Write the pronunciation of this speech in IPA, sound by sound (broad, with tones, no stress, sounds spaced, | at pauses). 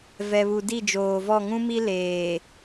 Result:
v ɛ˨ β u˨ d i˦˨ d͡ʒ oː˨ v ɔ˦˨ ŋ ũ˦ m i˦ l eː˨